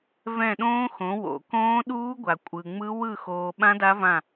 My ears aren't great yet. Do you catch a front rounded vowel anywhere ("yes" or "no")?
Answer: no